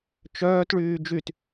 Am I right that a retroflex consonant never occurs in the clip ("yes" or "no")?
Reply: no